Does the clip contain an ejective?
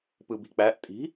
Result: yes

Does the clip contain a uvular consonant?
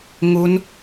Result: no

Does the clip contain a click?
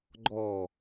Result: yes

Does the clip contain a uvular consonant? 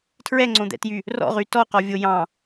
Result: yes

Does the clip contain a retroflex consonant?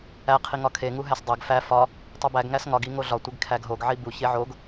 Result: no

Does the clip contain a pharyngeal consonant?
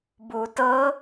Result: no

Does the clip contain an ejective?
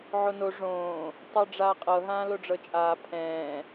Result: yes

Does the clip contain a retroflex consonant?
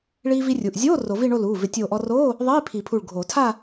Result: yes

